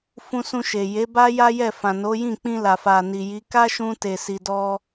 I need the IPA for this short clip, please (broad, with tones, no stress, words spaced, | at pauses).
fũ˧sũ˧ʃe˨ je˨˦ba˦ ja˦jɛ˦˨ fã˨no˨˦jĩ˦˨ k͡pĩ˧la˨fa˨ ni˨ji˨˦ ka˦ʃũ˧te˨ si˨dɔ˧